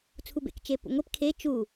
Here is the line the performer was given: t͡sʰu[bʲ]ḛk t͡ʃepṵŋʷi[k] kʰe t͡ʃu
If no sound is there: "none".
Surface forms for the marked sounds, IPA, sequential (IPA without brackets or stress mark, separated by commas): b, p